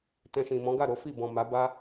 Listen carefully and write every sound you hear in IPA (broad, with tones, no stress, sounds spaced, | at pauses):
t ɛ̃˧ ʃ ĩ˨ m ɔ̃˨˦ ɡ a˦˨ ɾ o˨˦ f i˦˨ b ɔ̃˨ m a˨˦ b a˦